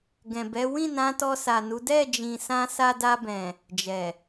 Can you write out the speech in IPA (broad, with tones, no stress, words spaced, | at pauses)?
ɡɛ̃˨bɛ˨˦ wĩ˦˨nã˨˦tɔ˧ sa˨nu˨˦ dɛ˦˨d͡ʒĩ˨ sã˧sa˧da˧bɛ̃˨ | d͡ʒɛ˨